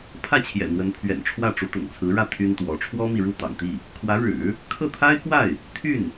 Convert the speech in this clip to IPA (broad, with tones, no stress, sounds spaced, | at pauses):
pʰ ä˥˩ t͡ɕʰ j ɛ̰˨˩ n̪ w ə˧˥ n pʰ ɥ ɛ̰˨˩ n ʈ͡ʂʰ w ä˥˩ ʈ͡ʂ u˧˥ t̪ ʊ̰˨˩ ŋ t͡sʰ ɹ̩˧˥ ɻ ä˥˩ t̪ʰ y˥ n t̪ w ɔ˧˥ ʈ͡ʂʰ w ɔ˥ m i˨ ɻ u˥˩ t̪ ɑ̰˨˩ ŋ t̪ i˥˩ | kʰ w ä˧˥ ɻ ɻ̩˨˩˦ | kʰ ɤ˥˩ t̪ʰ a˥ ɪ̯ k w a˥˩ ɪ̯ | t̪ʰ y˥˩ n